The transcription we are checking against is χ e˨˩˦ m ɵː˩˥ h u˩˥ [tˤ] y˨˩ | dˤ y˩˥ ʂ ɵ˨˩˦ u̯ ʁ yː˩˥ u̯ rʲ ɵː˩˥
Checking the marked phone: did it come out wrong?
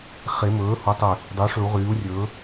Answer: no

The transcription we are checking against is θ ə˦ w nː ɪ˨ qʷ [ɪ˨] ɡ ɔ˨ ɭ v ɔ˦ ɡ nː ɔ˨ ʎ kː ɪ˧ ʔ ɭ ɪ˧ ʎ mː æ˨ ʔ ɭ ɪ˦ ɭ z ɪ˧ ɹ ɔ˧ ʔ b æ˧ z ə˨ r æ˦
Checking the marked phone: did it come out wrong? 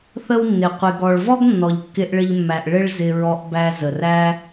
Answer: no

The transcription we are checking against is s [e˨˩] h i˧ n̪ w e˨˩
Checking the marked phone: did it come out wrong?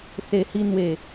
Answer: no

